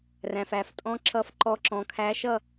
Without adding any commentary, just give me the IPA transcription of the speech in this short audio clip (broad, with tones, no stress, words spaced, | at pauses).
ræ̃˩fæ˩f tʼɔ̃˧˥ ǁʌ˧˥fǃɔ˧˥ǁɔ̃˩˥kʰæ˧˥ ʃʌ˥˨